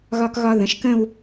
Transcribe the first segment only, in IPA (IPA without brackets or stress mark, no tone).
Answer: ɣ